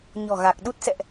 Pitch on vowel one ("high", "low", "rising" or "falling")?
low